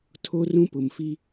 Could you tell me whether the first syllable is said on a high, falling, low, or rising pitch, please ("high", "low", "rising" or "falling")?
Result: high